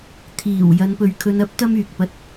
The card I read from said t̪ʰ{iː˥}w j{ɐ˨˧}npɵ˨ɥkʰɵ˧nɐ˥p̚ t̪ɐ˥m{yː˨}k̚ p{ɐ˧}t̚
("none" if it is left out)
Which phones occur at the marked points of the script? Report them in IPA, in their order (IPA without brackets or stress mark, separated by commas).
iː˨˩, ɐ˨˧, yː˨, ɐ˧